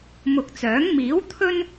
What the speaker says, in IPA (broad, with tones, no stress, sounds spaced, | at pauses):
m ʊ˨ k̚ t͡s œː˨˥ ŋ m iː˨˥ w t̪ʰ ɵ˥ n